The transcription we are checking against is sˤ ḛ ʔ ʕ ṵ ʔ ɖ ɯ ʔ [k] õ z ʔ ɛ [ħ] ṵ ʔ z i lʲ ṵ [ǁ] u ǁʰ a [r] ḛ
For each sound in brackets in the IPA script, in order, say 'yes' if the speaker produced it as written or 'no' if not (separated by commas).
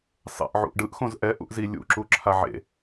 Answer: no, no, yes, no